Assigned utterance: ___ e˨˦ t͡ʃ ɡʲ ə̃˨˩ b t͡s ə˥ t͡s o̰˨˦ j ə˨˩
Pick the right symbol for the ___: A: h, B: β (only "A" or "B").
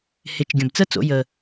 A